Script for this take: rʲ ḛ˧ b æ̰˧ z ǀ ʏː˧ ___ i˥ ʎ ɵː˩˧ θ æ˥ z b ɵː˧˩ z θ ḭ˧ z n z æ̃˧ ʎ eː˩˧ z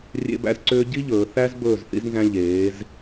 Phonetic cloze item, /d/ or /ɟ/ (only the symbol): ɟ